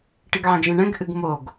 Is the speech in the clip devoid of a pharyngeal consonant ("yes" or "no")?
no